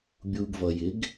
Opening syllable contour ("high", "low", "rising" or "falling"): low